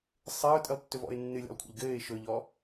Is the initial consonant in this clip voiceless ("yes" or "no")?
yes